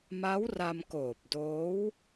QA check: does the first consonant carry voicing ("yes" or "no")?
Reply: yes